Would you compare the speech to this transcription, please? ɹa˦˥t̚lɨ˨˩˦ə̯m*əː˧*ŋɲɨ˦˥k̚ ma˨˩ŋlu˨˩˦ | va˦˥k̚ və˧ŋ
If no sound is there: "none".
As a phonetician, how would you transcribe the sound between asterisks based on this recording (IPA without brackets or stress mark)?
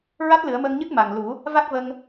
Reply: əː˧